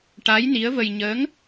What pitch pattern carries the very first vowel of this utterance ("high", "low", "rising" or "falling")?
rising